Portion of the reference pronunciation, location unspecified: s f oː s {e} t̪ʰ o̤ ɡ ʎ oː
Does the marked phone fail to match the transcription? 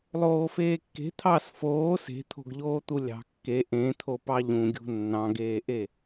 yes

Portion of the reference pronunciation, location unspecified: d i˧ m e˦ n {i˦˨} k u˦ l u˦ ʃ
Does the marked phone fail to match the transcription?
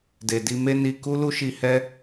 yes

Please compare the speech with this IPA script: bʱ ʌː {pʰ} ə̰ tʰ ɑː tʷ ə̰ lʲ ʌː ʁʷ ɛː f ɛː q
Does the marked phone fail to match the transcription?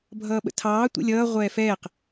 yes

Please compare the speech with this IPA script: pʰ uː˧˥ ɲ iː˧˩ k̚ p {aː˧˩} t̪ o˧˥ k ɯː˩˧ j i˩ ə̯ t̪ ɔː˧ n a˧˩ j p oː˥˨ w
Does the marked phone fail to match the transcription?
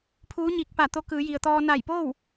no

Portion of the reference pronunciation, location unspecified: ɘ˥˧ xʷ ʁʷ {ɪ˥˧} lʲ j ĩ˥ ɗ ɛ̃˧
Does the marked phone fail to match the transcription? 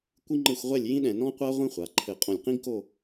yes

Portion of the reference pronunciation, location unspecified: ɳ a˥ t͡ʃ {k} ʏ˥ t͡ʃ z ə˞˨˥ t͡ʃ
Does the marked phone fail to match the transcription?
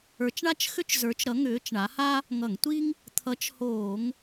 yes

